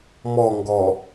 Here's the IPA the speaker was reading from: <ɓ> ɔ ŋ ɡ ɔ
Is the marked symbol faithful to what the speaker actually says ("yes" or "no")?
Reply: no